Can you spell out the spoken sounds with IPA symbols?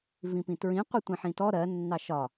v ĩ p ĩ t ɹ ĩ qʷ i tʷ ĩ ħ ĩ t ɔ ɾ ɜ nː ɑ ʃ ɒ

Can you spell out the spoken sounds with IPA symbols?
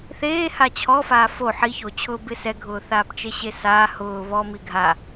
θ eː h a t͡ɕʰ ɔ f aː f o ħ i ç o t͡ɕʰ ʊː b ɪ s ɛ ɡʱ ʊː θ aː p t͡ʃ e ɕ e s aː h ʊː β ɔ m i ɡʱ a

